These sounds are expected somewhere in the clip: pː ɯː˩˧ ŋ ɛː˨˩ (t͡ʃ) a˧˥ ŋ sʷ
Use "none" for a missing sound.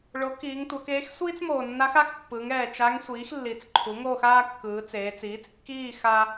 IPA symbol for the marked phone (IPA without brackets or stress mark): t͡ʃ